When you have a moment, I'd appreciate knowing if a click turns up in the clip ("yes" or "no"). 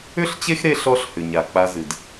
no